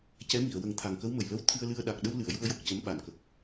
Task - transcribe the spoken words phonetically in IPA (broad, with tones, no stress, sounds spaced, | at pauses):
c ɛ˧˥ m i˨˩˨ ə̯ w ə˨˩˦ ŋ t̪ʰ a˨˩ ŋ k ə˧˥ w m ə˨˩ j l ə˧ w t̪ʰ ɨ˧ ə̯ l ɨ˧ ə̯ ɗ a˨˩ k̚ ɗ ə˧ w l ɨ˨˩˨ ə̯ j u˧ ə̯ j o˨˩ k̚ c ə˧˥ m ɓ a˨˩˨ n k ə˨˩ k̚